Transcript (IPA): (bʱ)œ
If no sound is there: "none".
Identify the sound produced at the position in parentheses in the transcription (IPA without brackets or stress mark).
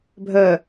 bʱ